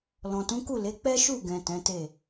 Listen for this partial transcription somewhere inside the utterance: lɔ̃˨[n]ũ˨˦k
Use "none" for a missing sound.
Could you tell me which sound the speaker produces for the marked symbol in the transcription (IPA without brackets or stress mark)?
t